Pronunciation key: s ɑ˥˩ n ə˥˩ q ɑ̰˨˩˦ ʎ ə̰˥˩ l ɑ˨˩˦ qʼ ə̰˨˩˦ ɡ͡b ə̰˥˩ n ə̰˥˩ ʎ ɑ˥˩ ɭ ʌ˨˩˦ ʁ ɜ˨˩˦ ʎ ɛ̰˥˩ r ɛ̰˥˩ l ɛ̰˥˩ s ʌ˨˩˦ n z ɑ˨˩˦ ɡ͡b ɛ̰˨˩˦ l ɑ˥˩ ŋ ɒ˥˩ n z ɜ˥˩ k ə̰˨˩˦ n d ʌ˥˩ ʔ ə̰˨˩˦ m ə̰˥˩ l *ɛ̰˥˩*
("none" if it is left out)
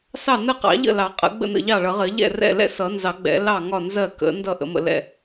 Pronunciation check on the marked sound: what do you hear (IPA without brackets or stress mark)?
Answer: ɛ̰˥˩